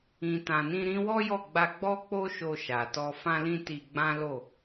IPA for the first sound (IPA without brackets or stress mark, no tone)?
ĩ